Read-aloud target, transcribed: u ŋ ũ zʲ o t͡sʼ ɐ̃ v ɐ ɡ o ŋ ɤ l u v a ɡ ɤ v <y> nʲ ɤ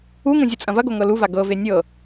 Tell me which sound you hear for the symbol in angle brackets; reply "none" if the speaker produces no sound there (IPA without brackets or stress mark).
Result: e